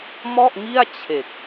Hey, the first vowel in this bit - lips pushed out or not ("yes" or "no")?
yes